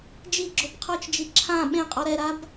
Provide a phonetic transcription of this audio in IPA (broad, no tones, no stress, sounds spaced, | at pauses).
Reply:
d͡ʒ i ɡ͡ǁ o b qʰ ɔ t͡ʃ d͡ʒ i ǁʰ ã ɓ ẽ qʼ ɔ ɾ ɛ ɾ a b